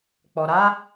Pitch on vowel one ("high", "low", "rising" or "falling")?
low